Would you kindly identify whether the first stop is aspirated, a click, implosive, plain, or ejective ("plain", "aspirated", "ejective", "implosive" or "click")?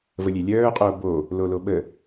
ejective